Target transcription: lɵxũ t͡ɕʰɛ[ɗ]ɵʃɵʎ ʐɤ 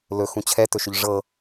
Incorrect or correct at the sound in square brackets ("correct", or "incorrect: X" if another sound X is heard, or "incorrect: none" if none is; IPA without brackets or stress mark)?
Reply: incorrect: t